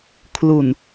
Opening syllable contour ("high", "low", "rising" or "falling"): low